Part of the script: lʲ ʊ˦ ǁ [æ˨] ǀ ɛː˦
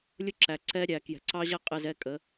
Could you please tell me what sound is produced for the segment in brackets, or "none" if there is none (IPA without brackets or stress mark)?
æ˨